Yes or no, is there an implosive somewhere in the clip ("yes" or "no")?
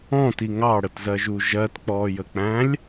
no